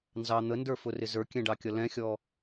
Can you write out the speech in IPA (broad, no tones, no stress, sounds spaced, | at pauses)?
n z ɑ n̪ ə n d ə˞ f ʊ r ɪ z ə˞ kʲ ɛ̃ ɖ ɑ kʲ ʌ l ɛ̃ xʲ ɔ